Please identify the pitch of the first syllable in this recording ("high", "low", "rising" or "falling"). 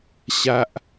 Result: high